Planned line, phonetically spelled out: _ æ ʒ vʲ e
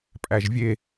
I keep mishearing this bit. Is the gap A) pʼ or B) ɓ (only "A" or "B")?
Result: A